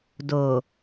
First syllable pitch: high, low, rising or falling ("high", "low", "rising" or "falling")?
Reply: low